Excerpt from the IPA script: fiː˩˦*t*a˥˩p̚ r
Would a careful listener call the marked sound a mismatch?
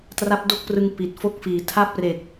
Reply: yes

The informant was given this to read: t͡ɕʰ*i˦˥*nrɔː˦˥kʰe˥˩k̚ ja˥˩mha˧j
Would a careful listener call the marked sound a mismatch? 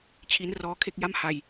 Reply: no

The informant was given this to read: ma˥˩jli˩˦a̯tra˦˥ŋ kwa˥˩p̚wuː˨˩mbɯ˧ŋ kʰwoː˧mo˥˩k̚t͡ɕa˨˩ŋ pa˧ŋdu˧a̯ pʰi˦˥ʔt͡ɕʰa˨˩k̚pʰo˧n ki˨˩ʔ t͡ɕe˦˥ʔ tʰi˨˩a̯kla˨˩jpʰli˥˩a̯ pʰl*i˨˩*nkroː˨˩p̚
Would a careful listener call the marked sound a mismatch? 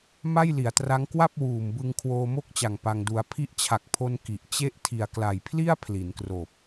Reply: yes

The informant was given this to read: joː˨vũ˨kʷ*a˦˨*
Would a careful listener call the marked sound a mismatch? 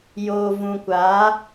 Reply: yes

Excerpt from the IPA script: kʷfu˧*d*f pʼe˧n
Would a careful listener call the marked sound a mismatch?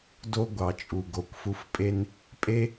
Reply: yes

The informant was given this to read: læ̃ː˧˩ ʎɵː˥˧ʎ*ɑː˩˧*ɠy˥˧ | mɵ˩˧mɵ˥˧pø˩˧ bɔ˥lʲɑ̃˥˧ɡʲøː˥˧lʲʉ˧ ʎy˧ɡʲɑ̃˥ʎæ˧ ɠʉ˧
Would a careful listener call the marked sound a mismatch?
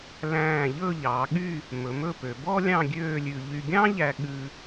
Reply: no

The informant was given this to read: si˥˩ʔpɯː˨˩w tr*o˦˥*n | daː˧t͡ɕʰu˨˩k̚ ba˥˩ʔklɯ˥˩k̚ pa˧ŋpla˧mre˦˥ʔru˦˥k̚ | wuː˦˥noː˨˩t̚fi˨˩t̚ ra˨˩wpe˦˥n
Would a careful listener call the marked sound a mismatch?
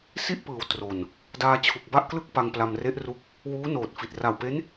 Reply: yes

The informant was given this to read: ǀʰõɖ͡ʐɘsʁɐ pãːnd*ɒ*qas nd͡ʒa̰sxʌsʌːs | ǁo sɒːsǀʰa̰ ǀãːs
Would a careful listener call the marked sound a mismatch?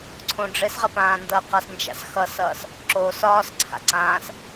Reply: yes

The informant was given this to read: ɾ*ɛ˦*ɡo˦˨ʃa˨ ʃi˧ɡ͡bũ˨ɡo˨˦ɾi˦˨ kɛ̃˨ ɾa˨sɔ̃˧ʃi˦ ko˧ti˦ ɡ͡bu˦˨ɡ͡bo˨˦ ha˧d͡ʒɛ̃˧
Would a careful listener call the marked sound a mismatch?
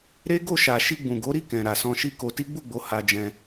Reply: yes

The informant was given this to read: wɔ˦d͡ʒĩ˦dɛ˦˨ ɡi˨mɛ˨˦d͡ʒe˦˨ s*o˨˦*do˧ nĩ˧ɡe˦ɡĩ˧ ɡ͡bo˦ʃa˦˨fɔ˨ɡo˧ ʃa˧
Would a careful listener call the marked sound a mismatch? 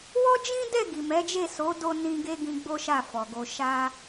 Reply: no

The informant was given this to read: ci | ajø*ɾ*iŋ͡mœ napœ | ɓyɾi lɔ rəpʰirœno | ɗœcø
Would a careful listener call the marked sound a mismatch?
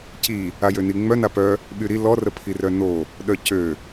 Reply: yes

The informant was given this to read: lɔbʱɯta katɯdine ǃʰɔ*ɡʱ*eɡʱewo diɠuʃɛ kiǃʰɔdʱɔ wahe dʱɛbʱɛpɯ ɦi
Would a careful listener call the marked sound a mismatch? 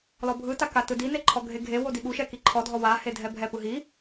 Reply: no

